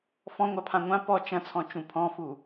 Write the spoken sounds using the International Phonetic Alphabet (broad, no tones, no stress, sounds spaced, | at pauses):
f ɔ̃ ŋʷ a pʰ ã ŋʷ ã p ɔ t͡ʃ ɐ̃ t͡sʰ ɔ̃ t͡ʃ ũ pʰ ɔ̃ f u